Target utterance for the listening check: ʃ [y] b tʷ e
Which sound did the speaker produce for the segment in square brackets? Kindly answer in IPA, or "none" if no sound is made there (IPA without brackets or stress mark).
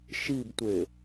i